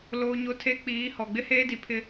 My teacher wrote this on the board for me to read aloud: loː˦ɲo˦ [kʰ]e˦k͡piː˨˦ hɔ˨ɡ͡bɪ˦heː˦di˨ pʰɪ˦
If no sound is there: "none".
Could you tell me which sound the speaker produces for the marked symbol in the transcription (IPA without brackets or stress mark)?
tʰ